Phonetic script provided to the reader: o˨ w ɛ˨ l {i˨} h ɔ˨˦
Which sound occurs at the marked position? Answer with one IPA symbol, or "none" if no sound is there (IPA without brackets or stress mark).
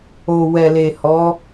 e˨